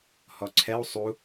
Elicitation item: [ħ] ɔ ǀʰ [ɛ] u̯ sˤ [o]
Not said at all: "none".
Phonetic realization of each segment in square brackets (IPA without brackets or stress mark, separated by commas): h, ɛ, u